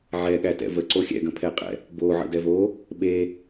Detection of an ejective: present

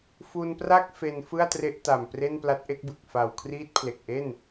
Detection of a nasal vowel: absent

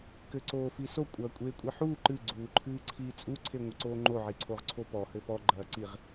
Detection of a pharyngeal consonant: present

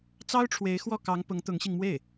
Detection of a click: absent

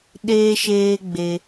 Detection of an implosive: present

